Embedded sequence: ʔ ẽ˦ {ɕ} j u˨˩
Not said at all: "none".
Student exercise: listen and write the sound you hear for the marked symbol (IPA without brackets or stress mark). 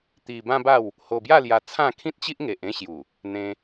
ɕ